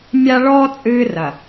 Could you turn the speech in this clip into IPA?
mʲa˦ ɭɔː˦ t͡sʼɨː˦rɐ˨

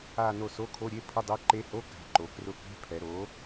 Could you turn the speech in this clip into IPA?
a˦˨ no˦˨so˧˥˧kʰo˧˥˧ɾʲe˧˥˧ pʰʊ˧˥˧dˤɛ˧˥ǃe˧˥ho˧˥˧ ka̤˩˥ǃo˩˧krʊ˧˥ ke̤˧˥˧pʰɛ˩˧ ɾo˩˥

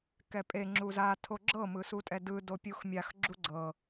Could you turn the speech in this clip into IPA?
kɛpʼe ŋ͡ǁuza tʰoɡ͡ǁɤ mɯsutʼɛdɯ dopʲuxmʲax ɡ͡ǁuɡ͡ǀɤ

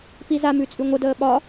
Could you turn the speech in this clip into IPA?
pizamʉ t͡sʼʉŋʷədəː ɓɒ

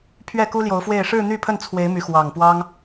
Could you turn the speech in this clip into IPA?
pʰɥɛ˥˨ku˦ ljo˨˦ʊ̯fwe˥˨ɪ̯ ʂɻ̩˥˨n̪y˥˨pʰə˥˨nt͡sʰwe˨˦ɪ̯ my˨˦xwɑ˨˩ŋpwɑ˦ŋ

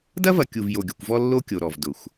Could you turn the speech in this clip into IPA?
dɐ˦vɐ˨ kʲu˨vjo˨ɡʲʊ˨kʷvɔ˦ lːo˦kʲo˨ɾɔ˨v dʊ˨xʷ

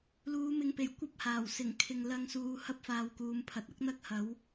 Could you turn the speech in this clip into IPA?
luː˨˧mɪ˨ŋpe˨˩j kʷɐ˥p̚haː˨˩w sɪ˨˩ŋ kʰɪ˨ŋlɐ˧ŋsuː˨˧ hɐ˥p̚faː˨w kuː˨˧mpʰɐ˨t̚ɐ˥k̚n̪ɐ˥k̚ hɐ˨˥w

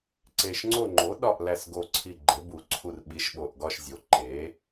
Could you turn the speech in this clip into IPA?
ǀe˨˩ʃŋ͡ǀo˦˨ŋ͡ǃo˩˥ ɗɒ˦˨ʔ læ˦˨sɡo˦˨ǀʰi˦˨ ɡ͡ǃe˩˥bu˨˩ǀʰu˦˨r ɓi˩˥ʃɓo˨˩ʔɡɒ˦˨ʃ zʲo˩˥ǃe˩˥

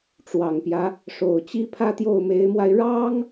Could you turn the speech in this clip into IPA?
ʈ͡ʂwɑ˨˩ŋpjä˦ | ʂo˨˩ʊ̯t͡ɕi˥pʰä˥ t̪jo˥˩ʊ̯me˧˥ɪ̯mwa˧ɪ̯ ɻɑ˥ŋ

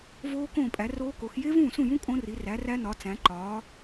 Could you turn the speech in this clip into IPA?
voː˦˥ kõː˥˩pʼæ˩˥ roː˦˥ko˩˥x je˦˥vũː˥˩sũ˥˩jũ˦˥ kʼõ˦˥ri˩˥ræ˩˥ræ˦˥ nɒ˩˥ t͡sæ̃˩˥ǃɒː˩˥

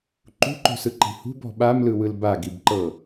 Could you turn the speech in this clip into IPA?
ǃṳǃo̤sɯǃi̤ hṳbɔ̤ ɓamlɯwɯl baɡibǃɤ

